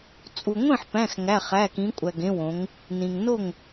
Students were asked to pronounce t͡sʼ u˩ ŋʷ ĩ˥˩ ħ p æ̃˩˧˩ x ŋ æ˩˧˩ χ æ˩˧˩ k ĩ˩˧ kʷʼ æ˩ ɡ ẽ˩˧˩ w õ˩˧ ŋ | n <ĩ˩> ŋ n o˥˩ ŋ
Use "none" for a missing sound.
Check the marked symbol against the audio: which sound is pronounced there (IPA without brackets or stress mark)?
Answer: ĩ˩